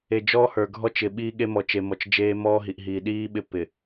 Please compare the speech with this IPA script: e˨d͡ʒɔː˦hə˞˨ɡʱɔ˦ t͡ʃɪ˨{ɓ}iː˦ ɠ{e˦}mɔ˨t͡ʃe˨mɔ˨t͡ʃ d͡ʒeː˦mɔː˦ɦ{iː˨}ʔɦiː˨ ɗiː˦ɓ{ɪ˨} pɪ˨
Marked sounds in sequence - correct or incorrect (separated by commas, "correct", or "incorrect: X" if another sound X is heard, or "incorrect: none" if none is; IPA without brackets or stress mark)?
correct, correct, incorrect: i˨, incorrect: ɪ˦